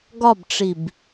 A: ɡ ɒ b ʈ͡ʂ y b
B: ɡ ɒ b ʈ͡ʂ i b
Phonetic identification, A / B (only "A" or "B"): B